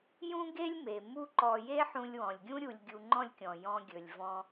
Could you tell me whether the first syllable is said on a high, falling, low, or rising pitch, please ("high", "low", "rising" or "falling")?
high